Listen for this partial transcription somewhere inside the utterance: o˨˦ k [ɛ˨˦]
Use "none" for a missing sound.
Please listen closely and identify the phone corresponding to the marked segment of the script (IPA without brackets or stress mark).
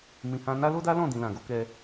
ɛ˧